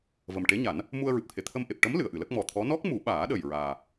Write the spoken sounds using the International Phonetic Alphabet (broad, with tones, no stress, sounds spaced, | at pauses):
v ə˨˩ m ʈ e˧˥ ɲ a˨˩˦ n | m u˧ ə̯ ɹ ɨ˨˩ p̚ t̪ʰ e˨˩˨ t̪ʰ ə˧ m ʔ e˨˩ p̚ ʈ ə˧˥ m l ɨ˨˩˨ ə̯ ʔ ɨ˨˩˨ l ə˦˥ k̚ m ɔ˨˩ t̪ʰ ɔ˧˥ n ɔ˦˥ k̚ m u˨˩˦ ɓ aː˨˩˦ ɗ ə˨˩ j ɹ aː˨˩